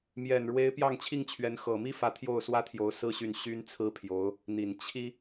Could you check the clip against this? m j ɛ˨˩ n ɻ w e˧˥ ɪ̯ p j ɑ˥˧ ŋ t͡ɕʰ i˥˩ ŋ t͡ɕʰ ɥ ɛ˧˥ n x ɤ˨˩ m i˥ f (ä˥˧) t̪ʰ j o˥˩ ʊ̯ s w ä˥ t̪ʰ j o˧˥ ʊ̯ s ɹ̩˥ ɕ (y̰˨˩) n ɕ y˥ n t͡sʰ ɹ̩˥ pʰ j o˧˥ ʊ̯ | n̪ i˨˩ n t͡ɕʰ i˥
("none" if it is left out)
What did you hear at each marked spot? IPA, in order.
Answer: ä˧˥, y˥˩

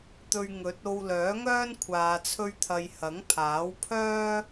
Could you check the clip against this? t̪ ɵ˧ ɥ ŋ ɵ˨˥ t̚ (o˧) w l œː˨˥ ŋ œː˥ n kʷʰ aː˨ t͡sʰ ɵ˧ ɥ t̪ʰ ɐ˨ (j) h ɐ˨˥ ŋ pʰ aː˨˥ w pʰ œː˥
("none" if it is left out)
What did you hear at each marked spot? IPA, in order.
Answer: o˧, j

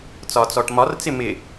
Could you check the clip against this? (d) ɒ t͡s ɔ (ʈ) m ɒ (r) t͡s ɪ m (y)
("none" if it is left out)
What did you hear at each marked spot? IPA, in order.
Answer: t͡s, ʈ, r, ɪ

